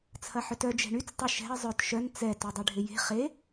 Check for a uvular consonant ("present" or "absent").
present